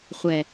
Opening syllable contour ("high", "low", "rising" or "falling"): low